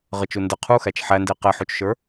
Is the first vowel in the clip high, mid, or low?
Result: mid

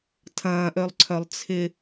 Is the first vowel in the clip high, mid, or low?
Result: low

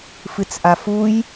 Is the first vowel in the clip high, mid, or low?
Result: high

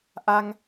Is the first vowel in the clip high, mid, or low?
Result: low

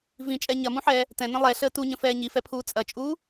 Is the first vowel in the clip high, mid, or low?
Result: high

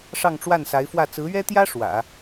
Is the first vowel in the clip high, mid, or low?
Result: low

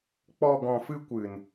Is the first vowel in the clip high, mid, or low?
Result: mid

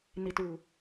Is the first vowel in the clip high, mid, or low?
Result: high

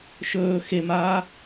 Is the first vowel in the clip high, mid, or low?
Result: mid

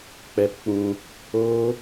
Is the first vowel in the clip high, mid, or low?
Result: mid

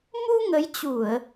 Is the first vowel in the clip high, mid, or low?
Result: high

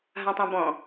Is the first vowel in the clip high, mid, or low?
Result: low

